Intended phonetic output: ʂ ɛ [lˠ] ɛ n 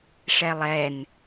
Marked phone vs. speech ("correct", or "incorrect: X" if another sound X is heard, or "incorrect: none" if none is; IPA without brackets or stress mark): correct